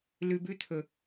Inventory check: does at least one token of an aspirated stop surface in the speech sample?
yes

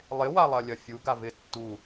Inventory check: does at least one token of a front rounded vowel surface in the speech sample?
no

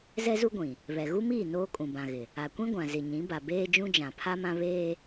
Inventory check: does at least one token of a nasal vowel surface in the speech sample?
yes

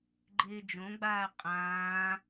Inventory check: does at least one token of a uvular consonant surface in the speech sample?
yes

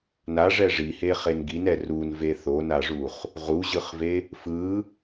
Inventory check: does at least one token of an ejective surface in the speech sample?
no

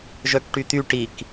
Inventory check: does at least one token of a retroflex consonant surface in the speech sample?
yes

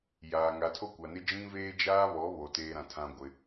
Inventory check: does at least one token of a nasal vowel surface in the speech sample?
yes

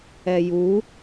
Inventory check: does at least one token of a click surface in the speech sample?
no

